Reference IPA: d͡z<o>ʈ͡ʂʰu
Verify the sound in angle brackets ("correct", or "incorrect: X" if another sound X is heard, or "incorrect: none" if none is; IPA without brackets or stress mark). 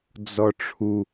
incorrect: ɔ